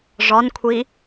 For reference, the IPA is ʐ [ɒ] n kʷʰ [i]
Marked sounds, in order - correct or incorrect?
correct, correct

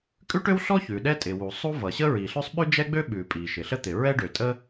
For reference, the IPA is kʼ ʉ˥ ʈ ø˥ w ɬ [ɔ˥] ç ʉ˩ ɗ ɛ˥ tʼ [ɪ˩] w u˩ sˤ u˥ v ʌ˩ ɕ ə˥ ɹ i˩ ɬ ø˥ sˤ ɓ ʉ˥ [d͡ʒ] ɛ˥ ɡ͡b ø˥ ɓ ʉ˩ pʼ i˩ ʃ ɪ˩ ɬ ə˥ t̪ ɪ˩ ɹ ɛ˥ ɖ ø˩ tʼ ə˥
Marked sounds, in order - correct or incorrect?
correct, correct, correct

